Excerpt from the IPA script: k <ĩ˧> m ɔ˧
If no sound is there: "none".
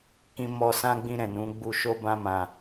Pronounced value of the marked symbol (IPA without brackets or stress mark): ĩ˧